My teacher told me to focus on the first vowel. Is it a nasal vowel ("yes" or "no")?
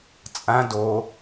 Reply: yes